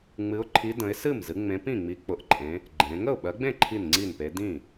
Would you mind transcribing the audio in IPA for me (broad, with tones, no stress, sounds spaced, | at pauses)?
ŋ͡m ɨ˨˦ ʊ̯ ǃʰ i˨˦ d ə̃˨˦ ɪ̯ s ɨ˥˩ m z ɨ˨˦ ŋ͡m ẽ˨˦ p ĩ˥˩ ŋ͡m i˨˦ k͡p ʊ˨˦ ʔ ǃʼ ẽ˨˦ | ɡ͡ǃ ẽ˨˦ ŋ ə˥˩ ʊ̯ ɓ ɜ˨˦ ɡ͡b ẽ˥˩ ǃʰ i˥˩ n ŋ͡ǀ i˥˩ n p e˨˦ d ĩ˥˩